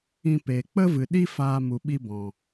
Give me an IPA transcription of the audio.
ĩ˧ p eː˨ k͡p ə˦ v ɨ˨ ɗ i˦ f aː˧ m u˨ ɓ i˧ b ɔ̃˨

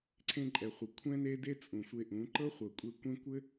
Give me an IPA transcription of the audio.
ǀʰ ẽ˧ ǃʼ ɛ˨ χʷ ɤ˨ kʷʰ ɛ̃˦ n e˦ d e˦ t͡sʼ ũ˨ sʷ e˧ ʔ ũ˨˦ ǃ ɤ˦ χʷ ɤ˨ kʷʼ e˧ kʷ ẽ˦ kʷ ɘ˦

